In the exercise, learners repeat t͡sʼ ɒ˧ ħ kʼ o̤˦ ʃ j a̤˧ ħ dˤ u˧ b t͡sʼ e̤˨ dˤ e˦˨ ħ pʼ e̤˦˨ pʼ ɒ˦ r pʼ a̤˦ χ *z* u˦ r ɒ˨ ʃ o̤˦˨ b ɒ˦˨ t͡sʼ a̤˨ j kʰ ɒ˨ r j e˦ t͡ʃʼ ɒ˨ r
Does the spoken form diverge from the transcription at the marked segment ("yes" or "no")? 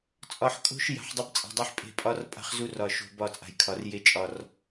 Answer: no